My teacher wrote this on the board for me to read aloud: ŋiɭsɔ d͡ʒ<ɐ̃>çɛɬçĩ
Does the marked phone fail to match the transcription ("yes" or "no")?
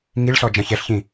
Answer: no